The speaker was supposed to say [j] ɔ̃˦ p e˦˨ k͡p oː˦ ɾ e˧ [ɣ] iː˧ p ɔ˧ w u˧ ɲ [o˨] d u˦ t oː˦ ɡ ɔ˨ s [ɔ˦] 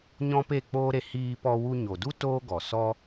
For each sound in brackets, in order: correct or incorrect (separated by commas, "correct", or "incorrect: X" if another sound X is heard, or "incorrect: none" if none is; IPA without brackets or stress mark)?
incorrect: ɲ, incorrect: h, correct, correct